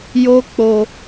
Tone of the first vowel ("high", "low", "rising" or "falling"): high